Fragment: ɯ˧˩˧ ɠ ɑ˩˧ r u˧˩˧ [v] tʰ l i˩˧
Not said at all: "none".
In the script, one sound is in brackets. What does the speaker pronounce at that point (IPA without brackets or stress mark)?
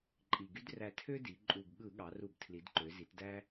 b